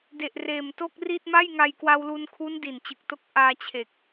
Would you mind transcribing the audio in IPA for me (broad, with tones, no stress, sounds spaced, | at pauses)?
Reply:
d e˨˩ ʔ r eː˨˩ m t o˥˩ k̚ r i˥˩ t̚ m a˥˩ j ŋ a˧ j k w a˧ w l u˧ n kʰ u˦˥ n d i˨˩ n t͡ɕ ɯ˨˩ k̚ t o˦˥ k̚ ʔ aː˧ t͡ɕʰ e˨˩ k̚